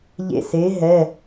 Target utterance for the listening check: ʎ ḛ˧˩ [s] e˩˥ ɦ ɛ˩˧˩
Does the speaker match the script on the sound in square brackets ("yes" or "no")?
yes